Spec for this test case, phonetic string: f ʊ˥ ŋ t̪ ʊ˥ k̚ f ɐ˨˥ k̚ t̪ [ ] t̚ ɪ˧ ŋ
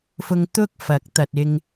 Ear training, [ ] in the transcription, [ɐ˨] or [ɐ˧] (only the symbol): ɐ˨